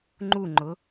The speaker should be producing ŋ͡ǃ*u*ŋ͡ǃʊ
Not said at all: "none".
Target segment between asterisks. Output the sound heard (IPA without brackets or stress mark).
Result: u